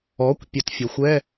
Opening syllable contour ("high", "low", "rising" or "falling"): rising